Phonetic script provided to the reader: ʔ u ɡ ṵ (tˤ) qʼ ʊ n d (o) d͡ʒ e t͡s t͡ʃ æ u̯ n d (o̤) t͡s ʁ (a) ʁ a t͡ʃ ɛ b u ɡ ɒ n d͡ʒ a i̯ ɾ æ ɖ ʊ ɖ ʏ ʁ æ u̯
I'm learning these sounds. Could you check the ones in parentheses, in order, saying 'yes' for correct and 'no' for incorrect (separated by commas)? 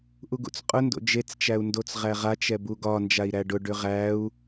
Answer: no, no, no, no